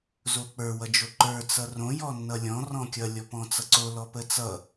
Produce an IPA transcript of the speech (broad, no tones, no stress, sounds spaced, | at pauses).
z o k͡p ə˞ w ʌ d͡ʒ o ǃ ə˞ t͡s ʌ r õ j ɔ nː ʌ lʲ ɔ̃ r ɔ̃ kʲ ʌ lʲ ɔ p ɔ̃ t͡s ʌ ǀ o l ɔ p ə t͡s ʌ